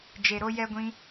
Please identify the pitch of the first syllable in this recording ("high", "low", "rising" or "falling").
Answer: low